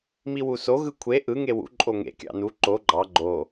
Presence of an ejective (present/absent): present